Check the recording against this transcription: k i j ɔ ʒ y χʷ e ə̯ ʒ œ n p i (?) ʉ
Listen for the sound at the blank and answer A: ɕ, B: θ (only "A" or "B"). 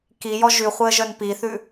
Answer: B